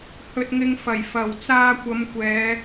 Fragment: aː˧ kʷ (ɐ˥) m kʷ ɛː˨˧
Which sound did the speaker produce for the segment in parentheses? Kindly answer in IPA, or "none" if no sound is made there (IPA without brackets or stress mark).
ɐ˨˧